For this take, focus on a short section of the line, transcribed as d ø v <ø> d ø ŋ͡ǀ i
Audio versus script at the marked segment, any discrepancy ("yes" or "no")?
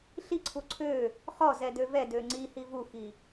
yes